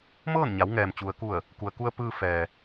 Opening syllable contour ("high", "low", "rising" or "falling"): falling